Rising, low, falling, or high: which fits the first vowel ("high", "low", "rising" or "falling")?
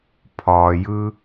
low